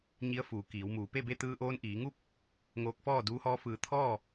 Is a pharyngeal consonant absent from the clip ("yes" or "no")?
yes